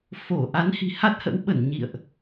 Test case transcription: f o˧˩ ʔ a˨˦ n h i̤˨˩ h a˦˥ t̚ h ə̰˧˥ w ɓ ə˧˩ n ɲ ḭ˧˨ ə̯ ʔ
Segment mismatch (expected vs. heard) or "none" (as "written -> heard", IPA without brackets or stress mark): none